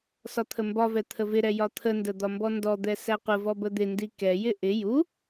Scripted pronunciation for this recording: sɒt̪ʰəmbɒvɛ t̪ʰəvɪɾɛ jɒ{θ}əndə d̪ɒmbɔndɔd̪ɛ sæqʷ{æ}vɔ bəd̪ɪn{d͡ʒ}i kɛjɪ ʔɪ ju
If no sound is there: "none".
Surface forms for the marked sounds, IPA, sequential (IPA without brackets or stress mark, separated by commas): t̪ʰ, ə, d